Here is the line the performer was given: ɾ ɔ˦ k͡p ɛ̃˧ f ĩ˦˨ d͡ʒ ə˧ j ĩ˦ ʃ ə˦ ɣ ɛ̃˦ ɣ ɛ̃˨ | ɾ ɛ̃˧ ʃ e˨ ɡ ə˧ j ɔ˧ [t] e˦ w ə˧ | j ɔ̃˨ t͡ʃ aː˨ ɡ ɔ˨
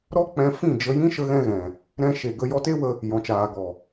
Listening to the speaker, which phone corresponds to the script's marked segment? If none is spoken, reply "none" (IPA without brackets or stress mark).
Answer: t